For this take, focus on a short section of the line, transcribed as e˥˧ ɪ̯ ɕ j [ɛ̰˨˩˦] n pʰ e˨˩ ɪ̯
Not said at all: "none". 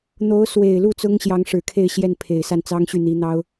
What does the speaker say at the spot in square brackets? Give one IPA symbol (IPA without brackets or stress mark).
ɛ˥˩